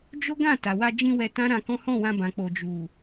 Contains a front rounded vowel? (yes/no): no